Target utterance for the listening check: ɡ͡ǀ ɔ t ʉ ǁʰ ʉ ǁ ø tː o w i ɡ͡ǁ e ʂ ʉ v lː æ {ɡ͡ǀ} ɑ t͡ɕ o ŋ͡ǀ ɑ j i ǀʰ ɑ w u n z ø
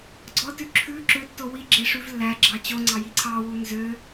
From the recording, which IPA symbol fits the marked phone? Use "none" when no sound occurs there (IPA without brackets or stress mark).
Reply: ɡ͡ǁ